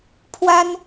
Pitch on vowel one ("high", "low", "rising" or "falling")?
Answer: high